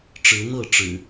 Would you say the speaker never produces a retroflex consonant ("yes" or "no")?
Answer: no